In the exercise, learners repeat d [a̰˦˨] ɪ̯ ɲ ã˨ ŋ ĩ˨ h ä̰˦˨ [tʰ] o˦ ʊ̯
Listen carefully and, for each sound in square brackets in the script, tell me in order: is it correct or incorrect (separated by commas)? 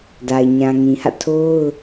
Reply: incorrect, correct